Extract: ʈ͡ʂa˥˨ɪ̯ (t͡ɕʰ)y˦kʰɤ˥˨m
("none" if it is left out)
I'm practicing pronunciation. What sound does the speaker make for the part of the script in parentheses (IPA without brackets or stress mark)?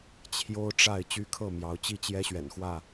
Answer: t͡ɕ